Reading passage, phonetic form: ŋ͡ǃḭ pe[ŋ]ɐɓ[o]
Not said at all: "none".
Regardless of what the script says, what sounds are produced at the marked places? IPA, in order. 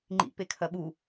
kʰ, u

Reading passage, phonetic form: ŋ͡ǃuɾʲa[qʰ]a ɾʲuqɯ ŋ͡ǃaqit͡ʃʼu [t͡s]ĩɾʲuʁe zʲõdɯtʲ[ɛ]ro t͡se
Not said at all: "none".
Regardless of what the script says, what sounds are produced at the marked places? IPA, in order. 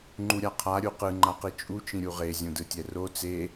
qʰ, t͡ʃ, ɛ

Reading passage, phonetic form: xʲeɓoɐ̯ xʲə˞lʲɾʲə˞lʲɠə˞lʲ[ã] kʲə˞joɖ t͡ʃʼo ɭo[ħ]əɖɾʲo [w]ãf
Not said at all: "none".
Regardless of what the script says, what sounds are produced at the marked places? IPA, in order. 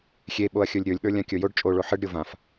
ã, ħ, v

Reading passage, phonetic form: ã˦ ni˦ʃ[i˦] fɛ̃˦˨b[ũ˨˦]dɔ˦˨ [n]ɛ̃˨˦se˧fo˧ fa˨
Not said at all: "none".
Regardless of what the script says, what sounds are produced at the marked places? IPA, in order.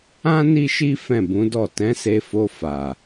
i˦, ũ˨˦, t

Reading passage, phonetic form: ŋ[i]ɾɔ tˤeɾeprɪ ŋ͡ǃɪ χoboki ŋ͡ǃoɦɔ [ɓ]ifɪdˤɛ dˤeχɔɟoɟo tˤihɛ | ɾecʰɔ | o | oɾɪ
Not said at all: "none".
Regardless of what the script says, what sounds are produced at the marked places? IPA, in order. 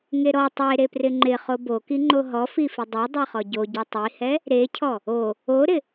e, f

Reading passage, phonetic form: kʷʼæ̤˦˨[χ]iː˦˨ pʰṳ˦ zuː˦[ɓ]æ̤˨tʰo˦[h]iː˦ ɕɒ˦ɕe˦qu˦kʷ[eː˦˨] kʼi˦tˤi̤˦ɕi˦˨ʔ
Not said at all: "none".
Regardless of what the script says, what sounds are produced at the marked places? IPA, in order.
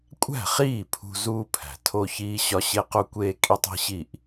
χ, pʰ, ç, eː˦

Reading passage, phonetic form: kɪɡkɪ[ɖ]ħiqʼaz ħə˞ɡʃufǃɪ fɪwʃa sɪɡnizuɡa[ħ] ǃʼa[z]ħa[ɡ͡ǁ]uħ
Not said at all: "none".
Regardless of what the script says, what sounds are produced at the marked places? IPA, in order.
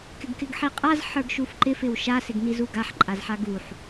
ɡ, ħ, z, ɡ

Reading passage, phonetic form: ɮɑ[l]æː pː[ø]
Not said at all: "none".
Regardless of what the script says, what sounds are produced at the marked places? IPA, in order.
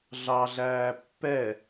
ɮ, ɛ

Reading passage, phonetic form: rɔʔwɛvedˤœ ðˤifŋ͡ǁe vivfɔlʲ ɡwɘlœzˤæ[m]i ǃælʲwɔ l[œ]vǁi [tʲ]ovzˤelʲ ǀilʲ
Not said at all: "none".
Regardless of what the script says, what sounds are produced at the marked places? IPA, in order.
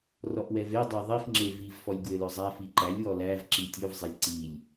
f, æ, tʲ

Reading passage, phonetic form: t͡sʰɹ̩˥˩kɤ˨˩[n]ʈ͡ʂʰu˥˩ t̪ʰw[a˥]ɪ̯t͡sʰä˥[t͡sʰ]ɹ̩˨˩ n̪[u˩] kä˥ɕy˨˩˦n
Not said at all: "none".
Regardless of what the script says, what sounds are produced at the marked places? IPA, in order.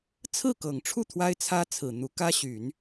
ŋ, a˥, t͡sʰ, u˧˥

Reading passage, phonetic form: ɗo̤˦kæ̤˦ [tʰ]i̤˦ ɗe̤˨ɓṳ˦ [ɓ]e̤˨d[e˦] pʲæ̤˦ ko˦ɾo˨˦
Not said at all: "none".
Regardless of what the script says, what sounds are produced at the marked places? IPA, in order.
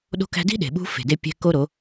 d, f, e˦

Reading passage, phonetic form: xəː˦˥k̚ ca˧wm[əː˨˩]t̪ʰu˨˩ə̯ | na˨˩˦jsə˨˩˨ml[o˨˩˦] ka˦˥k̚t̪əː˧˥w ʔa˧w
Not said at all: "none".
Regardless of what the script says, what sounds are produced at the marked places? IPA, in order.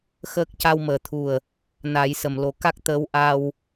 əː˨˩˦, o˨˩˦

